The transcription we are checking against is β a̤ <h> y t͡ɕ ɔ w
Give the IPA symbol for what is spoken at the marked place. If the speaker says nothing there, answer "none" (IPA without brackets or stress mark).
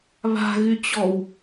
ɣ